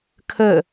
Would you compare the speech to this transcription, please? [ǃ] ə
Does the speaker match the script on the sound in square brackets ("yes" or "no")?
no